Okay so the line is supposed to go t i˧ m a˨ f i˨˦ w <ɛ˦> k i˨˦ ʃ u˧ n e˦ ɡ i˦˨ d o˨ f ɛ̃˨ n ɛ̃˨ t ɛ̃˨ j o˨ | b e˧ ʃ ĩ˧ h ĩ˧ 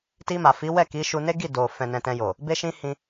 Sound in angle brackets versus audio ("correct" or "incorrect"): incorrect